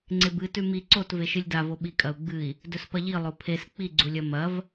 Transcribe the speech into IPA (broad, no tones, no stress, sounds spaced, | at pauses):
ŋ͡ǀ e b ɨ t ʉ m i ǀ o t v e ʃ ɨ lʲ d a v o ɓ i kʼ ɐ u̯ ɡ͡b ɨ i̯ | d ɵ s p ɐ ʎ i lˠ o pʰ e s k͡p i ɡ͡ǀ u lʲ ɐ m ɐ v